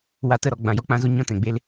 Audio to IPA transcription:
wa˧tə˦˨ɾɔ˨ ɡ͡bã˨jɔ˦k͡pã˦zo˦ ɲɔ̃˦tɛ̃˨ɡ͡be˦l

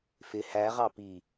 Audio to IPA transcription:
fɪ hæʁɑ pi

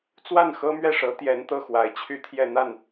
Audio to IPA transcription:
t͡swa˥˩nxɤ˥mɥɛ˥˩ʂɤ˧˥ t̪jɛ˧˥nt̪ɤ˥˩xwa˨˩ɪ̯ t͡ɕʰy˥t̪ʰjɛ˥˧n̪a˥˩n

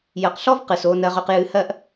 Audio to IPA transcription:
jɐ˨˦qɬɔ˦vqɨ˨s o˦ nɜ˦ʁɵ˦qjɨ˦ hɜ˦ʔ

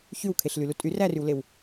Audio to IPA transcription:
çywkʰeɬlylu tʼyrærywlew

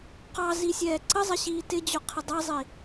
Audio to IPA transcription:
qɑzisʲɛː ǀəzˤɪɕiː tɪd͡ʑʊqʰɪ dˤʌzˤi

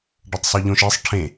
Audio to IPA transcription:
ɖɐtˤsˤoʎõʃ esˤ ʈʰẽ

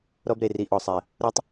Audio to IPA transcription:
ɾɔ˦bɾe˨ri˨ʔɔ˨ sˤɛ˨ | ɾo˦tˤ

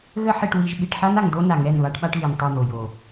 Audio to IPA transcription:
ɣə˦ ħi˨ʈwi˨ʒ ɓi˨ʈħa˦na˨ŋ do˦ na˨ŋɛ˦˨nβa˦ʈɓa˦ʈ βi˨ntˤu˦˨n̪o˨ jo˨

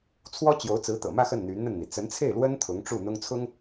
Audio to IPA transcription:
t͡sʰwɔ˥ t͡ɕjo˧˥ʊ̯t͡sɹ̩˧˥t̪ɤ̰˨˩mä˥˧ xə˥˩nn̪y˧˥nn̪ə˥˩nn̪i˩ t͡sə˧˥nt͡sʰe˥˩ɪ̯lwə˥n t̪ʰʊ˧˥ŋʈ͡ʂu˥˩ n̪ʊ˥ŋt͡sʰʊ˥ŋ

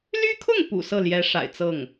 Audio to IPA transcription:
ly˥kʰʊ˥˩ŋ pṵ˨˩ sɤ˥˩ljɛ˧˥ʂa̰˨˩ɪ̯t͡sɤ˥˩ŋ

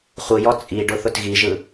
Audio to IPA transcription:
χʷɯjɔ t͡sʼiɖʊ θʊtɣiʒɯ

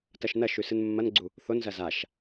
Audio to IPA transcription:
tɐʃnɐʃʉ sɨnmːɐnɡ͡ǀu | θonzɐ zaʃ

